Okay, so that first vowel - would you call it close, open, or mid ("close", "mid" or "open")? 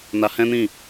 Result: open